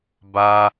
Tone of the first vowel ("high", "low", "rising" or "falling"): high